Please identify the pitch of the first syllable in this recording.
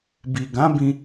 low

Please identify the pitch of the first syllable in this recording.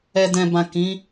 low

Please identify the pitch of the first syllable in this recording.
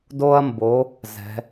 high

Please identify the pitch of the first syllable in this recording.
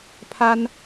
high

